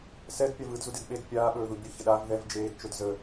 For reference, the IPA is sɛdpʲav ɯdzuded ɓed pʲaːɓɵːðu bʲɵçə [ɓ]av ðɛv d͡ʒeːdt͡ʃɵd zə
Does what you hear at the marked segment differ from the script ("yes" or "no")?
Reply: yes